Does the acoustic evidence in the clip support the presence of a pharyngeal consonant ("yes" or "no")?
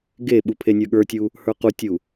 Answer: no